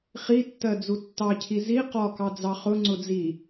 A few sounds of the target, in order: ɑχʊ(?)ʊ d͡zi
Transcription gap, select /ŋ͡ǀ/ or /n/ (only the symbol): ŋ͡ǀ